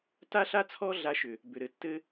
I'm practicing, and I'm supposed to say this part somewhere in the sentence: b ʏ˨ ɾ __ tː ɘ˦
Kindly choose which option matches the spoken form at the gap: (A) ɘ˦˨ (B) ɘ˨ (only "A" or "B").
B